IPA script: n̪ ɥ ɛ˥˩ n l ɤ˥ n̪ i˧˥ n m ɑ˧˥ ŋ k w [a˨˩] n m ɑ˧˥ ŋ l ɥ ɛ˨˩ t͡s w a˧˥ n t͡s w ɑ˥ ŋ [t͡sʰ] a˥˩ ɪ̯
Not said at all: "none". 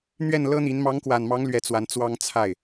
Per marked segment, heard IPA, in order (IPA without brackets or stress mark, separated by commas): a˨˩, t͡sʰ